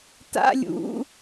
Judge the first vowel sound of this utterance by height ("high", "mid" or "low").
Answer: low